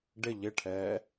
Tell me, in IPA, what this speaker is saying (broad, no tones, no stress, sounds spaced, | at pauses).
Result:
ɖ ɪ ʎ ɪ ʈʰ ɛː